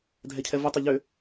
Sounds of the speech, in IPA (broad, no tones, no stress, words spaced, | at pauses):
dʱɛcʰɛvɯtˤø ʎø